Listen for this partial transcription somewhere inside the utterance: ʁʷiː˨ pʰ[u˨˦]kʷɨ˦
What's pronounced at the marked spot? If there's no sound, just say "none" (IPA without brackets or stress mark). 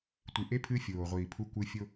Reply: u˦